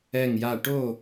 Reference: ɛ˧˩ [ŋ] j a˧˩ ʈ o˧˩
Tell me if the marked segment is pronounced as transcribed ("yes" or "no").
yes